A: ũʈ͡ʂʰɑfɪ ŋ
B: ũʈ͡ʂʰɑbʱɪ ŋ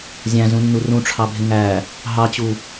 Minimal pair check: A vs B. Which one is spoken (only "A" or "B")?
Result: B